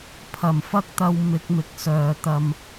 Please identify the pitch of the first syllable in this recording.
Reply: low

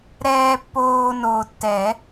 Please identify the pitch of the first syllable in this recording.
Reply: low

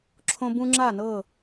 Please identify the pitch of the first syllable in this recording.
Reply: high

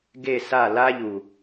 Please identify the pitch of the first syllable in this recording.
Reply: falling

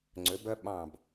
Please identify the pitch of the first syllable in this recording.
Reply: rising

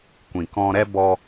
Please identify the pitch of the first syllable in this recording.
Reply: low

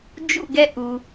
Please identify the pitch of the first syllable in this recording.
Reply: falling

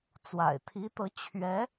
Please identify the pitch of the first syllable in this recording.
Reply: low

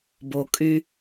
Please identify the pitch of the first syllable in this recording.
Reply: low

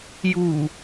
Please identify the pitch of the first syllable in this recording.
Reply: low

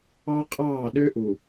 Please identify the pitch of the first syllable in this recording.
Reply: high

